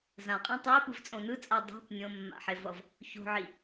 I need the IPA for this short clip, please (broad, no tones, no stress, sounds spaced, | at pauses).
z ã qʼ ĩ tˤ a e̯ p ɯ v t͡sʼ õ n ɯ t͡sʼ a dˤ e̤ p nʲ õ mː a̰ ħ e v ʌ v | ç o̤ ʕ i